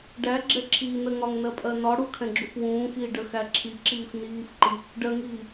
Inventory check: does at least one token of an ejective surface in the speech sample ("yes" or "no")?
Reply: yes